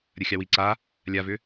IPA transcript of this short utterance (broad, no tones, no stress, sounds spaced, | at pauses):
ɾʲ ɐ xʲ ɑ w i ǀ a | lʲ a v ʏ